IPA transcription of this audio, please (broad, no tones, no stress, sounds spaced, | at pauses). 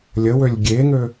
lʲ ə w ø lʲ ɡʲ e ŋ ø